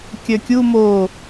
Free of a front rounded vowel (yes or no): no